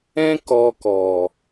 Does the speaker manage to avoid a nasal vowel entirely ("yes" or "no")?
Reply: no